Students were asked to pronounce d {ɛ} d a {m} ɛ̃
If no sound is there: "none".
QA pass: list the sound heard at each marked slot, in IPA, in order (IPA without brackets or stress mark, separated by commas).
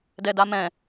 ɛ, m